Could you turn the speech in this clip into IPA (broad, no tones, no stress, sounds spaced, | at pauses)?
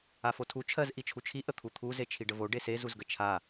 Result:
a f o tʰ u t͡ʃʰ ɜ z ʔ i t͡ʃʰ u t͡ʃʰ i ʔ ə t̪ʰ u t̪ʰ u z e t͡ʃʰ i ɖ ə v o ɖ e s e z u z ɡ ə t͡ʃʰ a